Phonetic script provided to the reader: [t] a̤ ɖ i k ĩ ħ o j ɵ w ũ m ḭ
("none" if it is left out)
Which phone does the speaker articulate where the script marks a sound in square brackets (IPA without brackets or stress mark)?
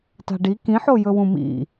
t